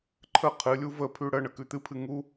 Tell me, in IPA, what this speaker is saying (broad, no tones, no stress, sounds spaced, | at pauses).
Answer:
ǃʰ ə qʰ ɨ lʲ u v ə pʰ ʉ ɽ ə ɳ ə k ʉ t̪ ɨ pʰ ɨ ŋ u